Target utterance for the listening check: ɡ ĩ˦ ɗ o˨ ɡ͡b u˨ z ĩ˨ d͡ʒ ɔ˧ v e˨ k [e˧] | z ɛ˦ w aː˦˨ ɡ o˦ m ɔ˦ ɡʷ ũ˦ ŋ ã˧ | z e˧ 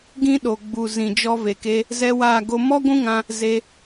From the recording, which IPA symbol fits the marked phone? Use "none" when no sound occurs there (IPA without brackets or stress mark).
e˧